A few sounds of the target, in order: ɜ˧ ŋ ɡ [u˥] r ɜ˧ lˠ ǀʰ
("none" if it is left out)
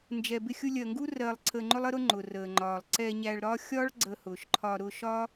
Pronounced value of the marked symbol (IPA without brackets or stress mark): u˥